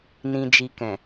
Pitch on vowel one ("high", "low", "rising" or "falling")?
low